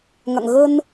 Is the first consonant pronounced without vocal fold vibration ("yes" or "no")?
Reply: no